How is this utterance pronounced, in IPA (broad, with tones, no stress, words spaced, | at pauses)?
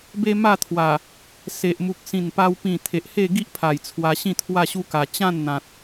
be˦ma˥˧t̪ʰwa˨˩ | se˨ʔ mu˨k̚sĩ˨˩npa˧w pĩ˨˩ t̪ʰe˨ʔhe˥˧ɡi˦ʔpʰa˨˩j t͡sʰwa˧ɕĩ˥˧ t̪ʰwa˥˧ɕu˦ka˨˩ t͡ɕã˥˧nn̪ã˨t̚